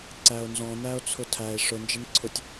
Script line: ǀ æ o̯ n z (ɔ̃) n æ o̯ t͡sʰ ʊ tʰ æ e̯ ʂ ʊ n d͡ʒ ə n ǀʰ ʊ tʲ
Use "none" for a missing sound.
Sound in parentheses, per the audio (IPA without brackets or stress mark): ɔ̃